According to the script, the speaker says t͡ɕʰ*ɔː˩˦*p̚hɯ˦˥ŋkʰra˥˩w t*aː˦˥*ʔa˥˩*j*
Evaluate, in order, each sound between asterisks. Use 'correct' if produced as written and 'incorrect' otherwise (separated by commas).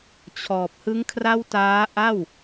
incorrect, correct, incorrect